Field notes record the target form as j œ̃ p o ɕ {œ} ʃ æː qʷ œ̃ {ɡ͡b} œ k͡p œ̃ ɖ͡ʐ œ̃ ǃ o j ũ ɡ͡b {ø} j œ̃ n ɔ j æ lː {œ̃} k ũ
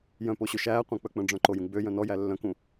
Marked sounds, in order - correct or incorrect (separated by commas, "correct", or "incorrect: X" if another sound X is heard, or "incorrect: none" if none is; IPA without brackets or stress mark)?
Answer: incorrect: ø, incorrect: k͡p, correct, correct